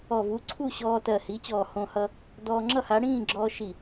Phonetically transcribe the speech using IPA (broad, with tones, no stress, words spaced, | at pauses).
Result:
ɔ˧˩vu˨˥ǀʰu˥˨ ɕɔː˧tɜ˧˩hi˨˥t͡ɕɔː˧˩ hõ˧hʌ˧ | dɔː˧ŋ͡ǁʌ˥˨ ha˨˥ ɽĩː˥˨ɡ͡ǁɔː˧ʃi˧˩